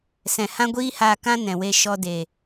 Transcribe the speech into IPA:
s ɛ̃˨ h ã˦ ɡʷ iː˦ h aː˧ k ã˦ n ɛ̃˨ w e˧ ʃ ɔ˧ d e˨

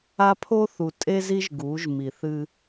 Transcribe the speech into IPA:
a˦ pʰ o˦ θ u˨ tʼ e˦ z i˦ ʒ ɡ u˨˦ ʒ m i˨ θ ɨ˦

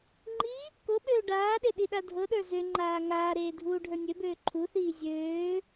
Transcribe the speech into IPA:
ŋ͡ǃ i | k o ɓ øː ɖ aː ɗ e ɗ i ɗ a dʱ ɤ ɗ ə˞ z ø ŋ͡ǃ aː ŋ aː ɾ eː dʱ uː ɖʱ ə˞ nʲ ø b øː ǃʰ u θ iː zʲ øː

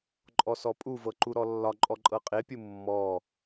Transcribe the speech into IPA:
ǃʼ ɔ s ɔ pʼ u v ɤ ǃ u ɾ ɔ lː ɒ ǃʼ ɔ ǃʼ ɤ qʼ e pʲ u mː ɔ

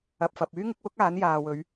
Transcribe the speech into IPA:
ɐ˨ p̚ f ɐ˨ p̚ yː˥ ŋ ɪ˨˥ k̚ w ʊ˥ k̚ aː˨˥ n j aː˨ w ɵ˨˧ ɥ

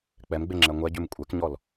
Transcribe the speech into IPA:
k͡p ɛ m ɡ͡b e ŋ͡ǁ ɛ ŋʷ ɛ ɟ ʉ m kʷʼ ɛ k ɲ ɔ l

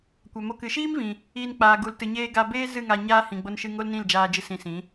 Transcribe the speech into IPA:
kʷ a˨ m o˧ k ɨ˨˦ ʃ iː˦ m v ĩ˨ | iː˧ n k͡p aː˨ ɡ u˨ l t ɨ˨ ɲ eː˧ ɡ a˧ b eː˦ z ɨ˦˨ ŋ a˧ ɲ aː˦ h ĩ˨ ɡ͡b o˧ n ʃ ɨ˧ ŋ o˦ l n ĩ˦˨ l d͡ʒ aː˧ d͡ʒ ɨ˧ s ĩ˧ s ĩ˨˦

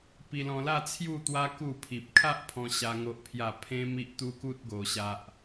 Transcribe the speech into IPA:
p i˧ l ɔ̃˧ l a˥˧ t͡sʰ j u˥˧ t̪ w a˦ k u˥˧ pʰ i˨ p̚ kʰ a˦ ʔ pʰ ɔ̃˧ ɕ a˦ ŋ o˦ ʔ pʰ j a˥˧ pʰ ẽ˦ m i˦ ʔ t̪ u˦ k u˦ t̚ ɡ o˧ ɕ a˦ ʔ

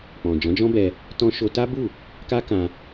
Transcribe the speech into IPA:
k͡p ɔ̃˨ d͡ʒ ɔ̃˨˦ d͡ʒ ɔ̃˦ b ɛ˧ | t ɔ̃˧ ʃ o˧ t a˦ b u˦˨ | k a˦ k ã˧

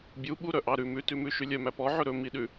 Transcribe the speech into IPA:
bʲ u ɓ u ɾ œ ʔ ɑ ɾ ʉ m ʉ t ʉ m ʉ ʃ y lʲ œ m æ p ɔ ʕ ɵ ɾ ɵ m i ɗ ʉ

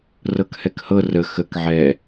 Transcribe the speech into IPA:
r ɤ k h ɛ k h ɤ r ə x ə k ʕ ɛ

